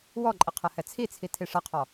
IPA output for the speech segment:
wɔǃʼɪ qʰɜhɛt͡sʰit͡sʰi tʰiʂʌqʰɔ

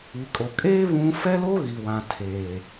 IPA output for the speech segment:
i˨kʼo˨ kʼeː˦ βũ˦ fɛ˦lo˦ ɣi˨wã˨ tʰeː˨

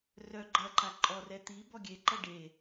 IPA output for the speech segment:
rœ ɡ͡ǃɐǃa ǃʼɔrɛ t̪i bɔɡʲeǃɐ ɖe

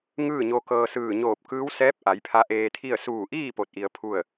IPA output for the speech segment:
ŋɯː˥˨ɲo˧kɤː˧ sɯː˧˩ɲoː˧˩p̚kɯː˧˥w sɛː˧˥p̚ʔa˩˧j pʰa˧ ʔeː˧t̪ʰi˥˨ə̯ suː˧˩ʔiː˥˨ po˧t̚ʔi˧ə̯ pʰu˥˨ə̯

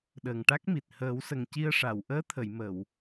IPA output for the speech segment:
ɗəː˨˩ŋʈa˦˥k̚mi˨˩t̚ həː˨˩˦wsə˨˩ŋci˧ə̯ʂa˨˩˨w ʔəː˧˥t̪ʰə˨˩˨jmə˨˩˨w

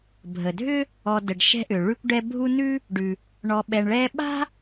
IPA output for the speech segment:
bʱə˩dʱʏ˥ | ɔ˨də˩ɖʃɛ̤˦ ʔʏ˩ ɭʉ˦kʷɖɛ˦ bʱu˦nʉ˥ | ɖʉ˩ | ɳɔ˨ɓɛ˨ɳɭɛː˥ ɓa̤˥

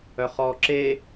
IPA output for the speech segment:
œχɔːǁe

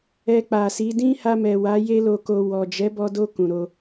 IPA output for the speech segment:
ɛ˧k͡pa˨si˨˦ dĩ˦ ha˧mɛ˨wa˨˦ je˦lo˧ko˧ wɔ˨ d͡ʒɛ˨˦bɔ˧do˧ kũ˨ɾo˧

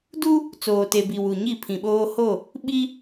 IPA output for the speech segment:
du˦ | t͡soː˨te˨bi˨ wu˨ɲi˦˨pʰĩ˨ɓoː˦ ho˦˨ | ɓi˦

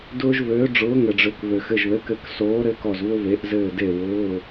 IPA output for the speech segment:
dʊː˦ʒvøː˨˥ ɖ͡ʐʊː˨˥ŋɘ˩ɖ͡ʐø˩˧k vø˩xɘ˩˧˩ʒðɘ˩˧˩kɘ˧˩k soː˨˥ɾɘ˩˧˩kɔ˧˩zvʊ˦ ve˩˧ʔ zɘː˧˩de˧˩ wʊː˩˧˩

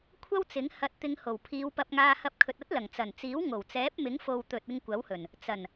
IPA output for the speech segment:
kʷʰɐ˥wt͡sɪ˨˥ŋ hɐ˧t̚t̪ɪ˧ŋ ho˨˩wpʰiː˨˧wpɐ˧p̚ŋaː˧ hɐ˧p̚kʰɵ˨t̚ɐ˥t̚lɐ˨˩ŋ t͡sɐ˨˩nt͡siː˨˥wŋo˨˩wt͡sɛː˨˥p̚ mɪ˨˥ŋfo˨w t̪ɵ˨t̚ ɪ˧ŋkʷɐ˨˥whɵ˨˩n | t͡sɐ˨˩n

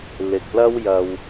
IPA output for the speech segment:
lɪ˨k̚lɐ˥wjɐ˨w

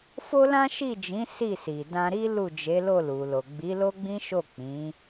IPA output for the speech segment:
fo˦lã˦ʃi˦˨d͡ʒĩ˨˦ si˦˨si˨ dã˧ɾi˦ lu˦˨ d͡ʒe˨˦lo˦˨ lu˨lo˨ ɡ͡bi˨˦lo˦ɡ͡bĩ˦ ʃo˦˨k͡pĩ˨˦

